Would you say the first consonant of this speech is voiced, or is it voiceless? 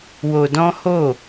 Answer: voiced